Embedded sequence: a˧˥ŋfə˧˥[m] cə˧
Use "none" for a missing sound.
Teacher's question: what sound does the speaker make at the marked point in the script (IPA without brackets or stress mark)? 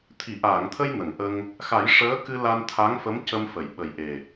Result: m